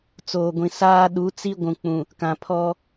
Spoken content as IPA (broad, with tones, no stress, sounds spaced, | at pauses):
t͡s oː˨ ɡʷ ĩ˨ s aː˦ ɗ u˨˦ t͡s i˦ ɡʷ ũ˨ k͡p ũ˨ | k ã˨ pʰ ɔ˦